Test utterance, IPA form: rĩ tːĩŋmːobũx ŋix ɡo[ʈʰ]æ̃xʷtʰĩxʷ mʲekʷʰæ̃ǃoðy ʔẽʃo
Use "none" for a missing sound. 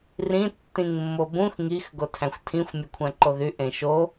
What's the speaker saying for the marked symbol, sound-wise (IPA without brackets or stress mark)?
tʰ